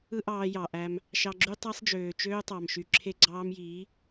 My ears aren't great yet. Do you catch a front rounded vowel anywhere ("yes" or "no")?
yes